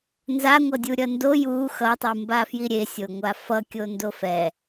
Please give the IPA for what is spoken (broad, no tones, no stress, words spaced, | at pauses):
nzaŋʷʌdʲu ɾʲʌndo ju xʌtˤɯmba fjiɾʲesʲoŋʷa fʌkʲo ndofɛ